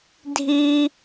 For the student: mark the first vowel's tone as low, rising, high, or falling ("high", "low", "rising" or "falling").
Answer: high